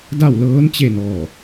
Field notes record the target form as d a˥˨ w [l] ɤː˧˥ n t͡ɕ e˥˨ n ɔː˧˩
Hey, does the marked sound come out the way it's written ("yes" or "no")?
yes